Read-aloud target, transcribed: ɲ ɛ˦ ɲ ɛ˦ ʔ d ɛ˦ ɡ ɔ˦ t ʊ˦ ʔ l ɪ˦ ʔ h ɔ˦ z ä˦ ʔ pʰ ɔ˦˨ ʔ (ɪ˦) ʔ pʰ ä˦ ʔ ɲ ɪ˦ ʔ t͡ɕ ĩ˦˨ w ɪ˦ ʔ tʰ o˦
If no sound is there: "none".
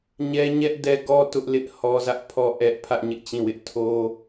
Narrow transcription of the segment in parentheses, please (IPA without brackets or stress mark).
ɛ˦